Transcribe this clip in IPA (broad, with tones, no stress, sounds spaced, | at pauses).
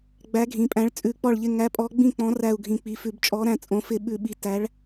ɡ͡b æ˨˥ ɡʱ ĩ˩˧˩ pʼ æ̃˨˥ ɭ t͡sʼ ʉ˧˩˧ k͡p ɔ˥˩ ɭ ʎ ɪ˥˩ ŋ æ˨˥ pʼ ɔ˨˥ ɡ͡b ĩ˥˩ k͡p ɔ̃˨˥ r æ˧˩ u̯ ɡʱ ĩ˩˧ k͡p i˩˧˩ f ʉ˧˩˧ b t͡ʃʼ ɔ˨˥ ɾ æ̃˧˩ t͡sʼ õ˩˧ f ɪ˧˩˧ ɓ ʉ˧˩˧ ɓ i˨˥ t æ˨˥ ɭ